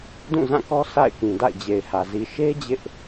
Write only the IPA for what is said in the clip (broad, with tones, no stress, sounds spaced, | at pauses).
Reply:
d ũ˦˨ z ã˦˨ k ɔ˦ sʰ a̰˦˨ ɪ̯ k ĩ˨ d a̰˦˨ ɪ̯ d͡ʑ e˨ ɪ̯ h ä˨ z i˨ ʃ e˦ d͡ʑ ɪ˦ ʔ